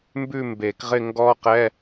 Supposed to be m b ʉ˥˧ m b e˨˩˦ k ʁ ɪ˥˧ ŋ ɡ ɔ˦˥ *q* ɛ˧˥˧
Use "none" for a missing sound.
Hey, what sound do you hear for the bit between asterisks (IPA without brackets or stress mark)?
q